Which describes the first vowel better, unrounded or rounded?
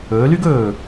rounded